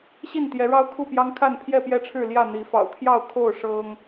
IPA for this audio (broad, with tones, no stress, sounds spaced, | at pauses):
ɕ i˥˨ n t̪ j ɛ˨˦ ɻ ɑ˦ ʊ̯ kʰ u˥˨ p j ɑ˦ ŋ kʰ a˥˨ n pʰ j ɛ˥˨ p j ɛ˥˨ ʈ͡ʂʰ ɻ̩˥˨ l j ä˥˨ n̪ i˨˦ f ɑ̰˨˩ ʊ̯ t̪ʰ j ɑ˥˨ ʊ̯ kʰ o˥˨ ʊ̯ ʂ ɤ˦ ŋ